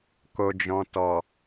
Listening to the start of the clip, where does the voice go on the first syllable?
low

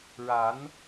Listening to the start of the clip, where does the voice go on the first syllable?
rising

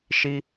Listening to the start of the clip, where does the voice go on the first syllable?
high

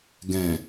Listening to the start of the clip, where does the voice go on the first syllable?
low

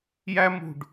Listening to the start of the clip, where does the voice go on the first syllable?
high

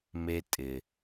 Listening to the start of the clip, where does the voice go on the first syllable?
high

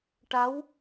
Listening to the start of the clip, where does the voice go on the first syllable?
rising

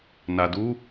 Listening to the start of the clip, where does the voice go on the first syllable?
low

